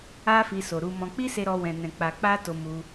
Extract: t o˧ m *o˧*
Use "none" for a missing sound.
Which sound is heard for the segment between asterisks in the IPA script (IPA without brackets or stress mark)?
u˧